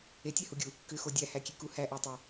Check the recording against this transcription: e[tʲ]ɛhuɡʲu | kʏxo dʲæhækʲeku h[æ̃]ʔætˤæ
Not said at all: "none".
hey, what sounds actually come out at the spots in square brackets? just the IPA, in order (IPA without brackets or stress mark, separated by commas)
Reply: tʲ, æ